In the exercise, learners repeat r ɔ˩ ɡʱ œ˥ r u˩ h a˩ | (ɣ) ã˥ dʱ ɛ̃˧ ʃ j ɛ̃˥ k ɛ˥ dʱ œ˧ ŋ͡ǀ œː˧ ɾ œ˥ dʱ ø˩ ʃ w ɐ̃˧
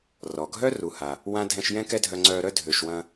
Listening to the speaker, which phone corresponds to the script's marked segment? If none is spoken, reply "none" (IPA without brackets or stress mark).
w